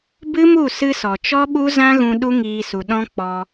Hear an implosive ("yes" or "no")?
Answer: yes